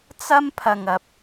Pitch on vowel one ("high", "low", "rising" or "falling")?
high